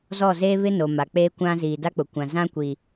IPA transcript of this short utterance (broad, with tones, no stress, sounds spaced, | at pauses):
z ɔ˦˨ z eː˦ β ɪ˦ n o˨ m a˨ k͡p eː˦ kʷ ã˦ z iː˨ d a˦ k͡p ʊ˨ kʷ ã˨ z ã˦ kʷ iː˨